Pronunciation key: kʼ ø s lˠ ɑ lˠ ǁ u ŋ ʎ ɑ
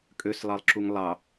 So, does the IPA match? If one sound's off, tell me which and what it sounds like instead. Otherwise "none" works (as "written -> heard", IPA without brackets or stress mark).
ʎ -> lˠ